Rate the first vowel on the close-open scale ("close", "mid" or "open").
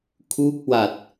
close